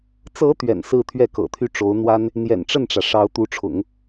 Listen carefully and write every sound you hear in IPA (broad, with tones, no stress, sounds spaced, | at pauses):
t͡s ɤ˧˥ t̪ ɥ ɛ̰˨˩ n s ɹ̩˥˧ t̪ʰ ɥ ɛ˥˩ k ɤ̰˨˩ t̪ʰ y˥˩ ʈ͡ʂ o˧˥ ʊ̯ n̪ w a˥ n | n̪ j ɛ̰˨˩ n ʈ͡ʂ ə˥˩ n ʈ͡ʂ ä˩ ʂ ɑ˧˥ ʊ̯ t̪ u˧˥ ʈ͡ʂʰ ʊ̰˨˩˦ ŋ